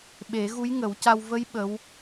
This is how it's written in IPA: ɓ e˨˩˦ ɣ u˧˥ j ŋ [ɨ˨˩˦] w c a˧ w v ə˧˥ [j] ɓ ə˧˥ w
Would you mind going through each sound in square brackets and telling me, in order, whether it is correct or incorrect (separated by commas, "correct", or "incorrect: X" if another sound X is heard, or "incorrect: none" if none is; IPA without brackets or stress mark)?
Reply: incorrect: ə˨˩˦, correct